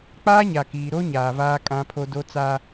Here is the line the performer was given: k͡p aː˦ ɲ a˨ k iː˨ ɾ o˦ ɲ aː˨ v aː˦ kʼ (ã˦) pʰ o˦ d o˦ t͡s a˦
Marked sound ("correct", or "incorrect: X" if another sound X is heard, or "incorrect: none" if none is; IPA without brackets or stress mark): correct